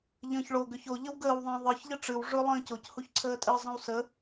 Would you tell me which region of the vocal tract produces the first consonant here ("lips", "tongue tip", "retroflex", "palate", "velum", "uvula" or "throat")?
palate